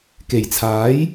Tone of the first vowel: low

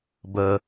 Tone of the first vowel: low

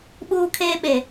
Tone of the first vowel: high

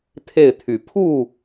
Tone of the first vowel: falling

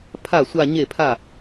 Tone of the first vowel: falling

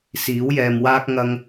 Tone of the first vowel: rising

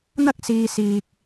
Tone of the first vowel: high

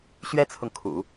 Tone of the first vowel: high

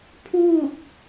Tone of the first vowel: falling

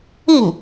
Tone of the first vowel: falling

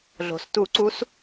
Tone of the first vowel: low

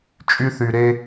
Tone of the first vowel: high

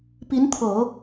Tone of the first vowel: rising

